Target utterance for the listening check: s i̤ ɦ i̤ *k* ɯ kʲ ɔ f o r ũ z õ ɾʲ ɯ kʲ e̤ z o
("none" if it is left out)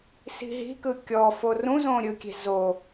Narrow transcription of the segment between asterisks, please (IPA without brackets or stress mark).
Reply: k